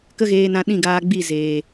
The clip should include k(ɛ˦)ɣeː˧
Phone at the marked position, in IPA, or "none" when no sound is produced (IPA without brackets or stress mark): ə˦